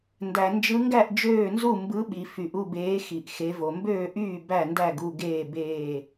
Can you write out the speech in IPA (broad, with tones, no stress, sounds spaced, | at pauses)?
n d æ˩ n d͡ʒ ɯ˨˦ ŋ ɡ æ˥˨ ʔ d͡ʒ øː˥˨ n z u˥˨ m b ɯ˨˦ ɓ i˩ f y˩ ʔ u˥˨ b eː˨˦ x i˩ ʔ x e˨˦ v o˩ m b øː˥˨ ʔ yː˥˨ b æ˥˨ n d æ˥˨ ɡ u˥˨ ɡ eː˥˨ b eː˥˨